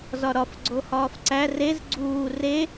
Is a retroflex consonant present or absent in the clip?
absent